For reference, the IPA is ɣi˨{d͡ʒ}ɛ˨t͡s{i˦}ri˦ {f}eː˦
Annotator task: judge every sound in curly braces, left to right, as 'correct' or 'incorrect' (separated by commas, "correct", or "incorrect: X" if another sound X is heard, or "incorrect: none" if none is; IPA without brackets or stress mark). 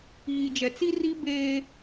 correct, correct, incorrect: b